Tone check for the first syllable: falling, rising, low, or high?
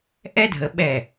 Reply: high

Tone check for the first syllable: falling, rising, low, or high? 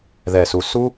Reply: low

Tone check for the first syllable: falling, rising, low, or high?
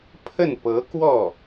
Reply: falling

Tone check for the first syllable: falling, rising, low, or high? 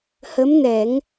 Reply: rising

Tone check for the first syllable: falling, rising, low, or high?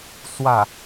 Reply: falling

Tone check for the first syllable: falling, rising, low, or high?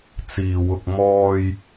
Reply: low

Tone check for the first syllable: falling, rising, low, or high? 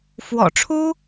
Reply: low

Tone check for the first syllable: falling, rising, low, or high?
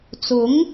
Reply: rising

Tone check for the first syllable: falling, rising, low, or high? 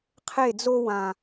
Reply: falling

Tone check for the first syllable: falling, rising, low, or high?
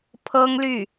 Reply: high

